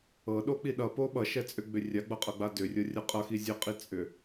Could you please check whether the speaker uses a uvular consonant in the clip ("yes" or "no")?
yes